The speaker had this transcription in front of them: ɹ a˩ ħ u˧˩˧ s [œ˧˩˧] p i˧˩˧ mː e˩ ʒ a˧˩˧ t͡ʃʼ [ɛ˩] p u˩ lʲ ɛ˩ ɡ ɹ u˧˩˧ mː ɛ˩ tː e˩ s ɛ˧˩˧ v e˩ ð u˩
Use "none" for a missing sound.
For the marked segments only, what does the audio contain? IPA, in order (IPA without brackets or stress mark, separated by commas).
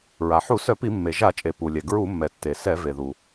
œ˧˩˧, e˩